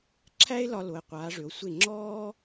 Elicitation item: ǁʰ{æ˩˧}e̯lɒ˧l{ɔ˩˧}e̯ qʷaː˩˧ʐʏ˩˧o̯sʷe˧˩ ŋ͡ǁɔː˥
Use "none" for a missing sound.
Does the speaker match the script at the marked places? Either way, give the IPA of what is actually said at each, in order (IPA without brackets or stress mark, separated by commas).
æ˥, o˩˧